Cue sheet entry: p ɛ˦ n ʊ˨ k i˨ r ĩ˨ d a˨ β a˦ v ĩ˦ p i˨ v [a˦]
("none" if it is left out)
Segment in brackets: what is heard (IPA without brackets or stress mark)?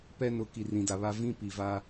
a˦